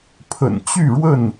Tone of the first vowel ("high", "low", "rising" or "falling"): low